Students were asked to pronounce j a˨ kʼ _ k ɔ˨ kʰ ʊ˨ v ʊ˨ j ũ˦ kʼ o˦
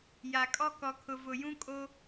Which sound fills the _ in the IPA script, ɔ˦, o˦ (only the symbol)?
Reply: ɔ˦